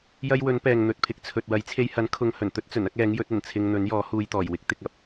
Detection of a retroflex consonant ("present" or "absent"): absent